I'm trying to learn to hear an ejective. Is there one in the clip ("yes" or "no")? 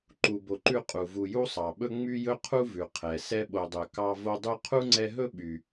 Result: yes